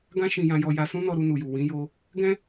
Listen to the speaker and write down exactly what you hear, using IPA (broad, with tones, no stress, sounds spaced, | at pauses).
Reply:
ɡ ã˦ ʃ ĩ˧ j ã˧ j ɔ˧ j a˧ s ũ˦ n ɔ˧ ɾ u˧ n u˨ j u˨ w ĩ˨˦ j o˧ | ɡ ɛ̃˦